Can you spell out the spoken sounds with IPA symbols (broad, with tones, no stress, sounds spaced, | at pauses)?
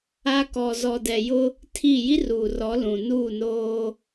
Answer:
a˦ k ɔ˨ z ɔ˨ d ɛ˨ j ʊ˦ | tʰ i˦˨ j i˦ r uː˨ r ɔ˨˦ l ũ˨ n uː˦˨ n oː˦